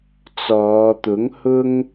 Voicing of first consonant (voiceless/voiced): voiceless